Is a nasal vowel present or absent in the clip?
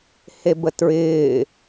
absent